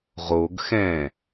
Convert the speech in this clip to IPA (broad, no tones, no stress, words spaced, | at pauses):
ʁoɡ xɛ̃